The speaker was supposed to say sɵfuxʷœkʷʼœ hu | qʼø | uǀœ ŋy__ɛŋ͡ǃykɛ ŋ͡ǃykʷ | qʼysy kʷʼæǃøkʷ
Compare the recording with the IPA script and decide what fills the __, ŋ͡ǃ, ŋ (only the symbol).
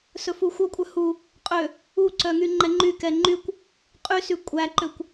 ŋ͡ǃ